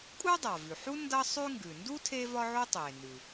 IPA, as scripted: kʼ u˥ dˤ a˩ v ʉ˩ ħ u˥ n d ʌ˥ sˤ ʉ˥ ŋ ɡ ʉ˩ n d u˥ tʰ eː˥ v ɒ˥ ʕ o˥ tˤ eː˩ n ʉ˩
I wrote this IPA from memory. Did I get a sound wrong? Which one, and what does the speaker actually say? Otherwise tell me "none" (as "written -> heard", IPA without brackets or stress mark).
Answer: none